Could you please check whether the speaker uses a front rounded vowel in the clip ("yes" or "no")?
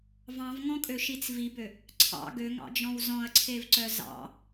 yes